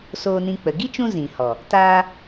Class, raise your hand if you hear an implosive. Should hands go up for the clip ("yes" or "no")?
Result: no